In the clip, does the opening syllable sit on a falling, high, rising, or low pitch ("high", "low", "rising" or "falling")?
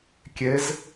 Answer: rising